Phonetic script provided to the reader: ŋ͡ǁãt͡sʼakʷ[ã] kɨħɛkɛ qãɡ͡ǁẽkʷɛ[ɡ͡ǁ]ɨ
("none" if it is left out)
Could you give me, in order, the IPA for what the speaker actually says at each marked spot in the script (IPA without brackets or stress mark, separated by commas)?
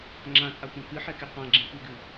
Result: ã, ɡ